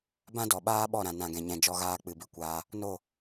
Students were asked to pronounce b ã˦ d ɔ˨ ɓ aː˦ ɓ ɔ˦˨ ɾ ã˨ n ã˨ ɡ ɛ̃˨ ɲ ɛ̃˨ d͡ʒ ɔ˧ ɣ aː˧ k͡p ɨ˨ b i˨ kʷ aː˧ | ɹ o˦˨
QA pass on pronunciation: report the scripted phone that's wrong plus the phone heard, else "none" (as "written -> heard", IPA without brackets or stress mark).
ɹ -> n